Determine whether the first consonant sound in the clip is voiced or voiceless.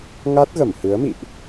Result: voiced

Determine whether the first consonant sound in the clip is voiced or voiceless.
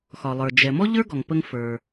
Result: voiceless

